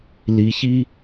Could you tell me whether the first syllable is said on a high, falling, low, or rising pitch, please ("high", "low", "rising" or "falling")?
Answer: rising